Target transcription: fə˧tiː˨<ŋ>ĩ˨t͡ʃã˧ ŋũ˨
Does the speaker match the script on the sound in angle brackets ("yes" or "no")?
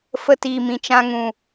no